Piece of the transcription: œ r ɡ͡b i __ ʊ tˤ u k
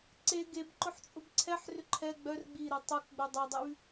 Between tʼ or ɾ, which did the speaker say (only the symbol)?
ɾ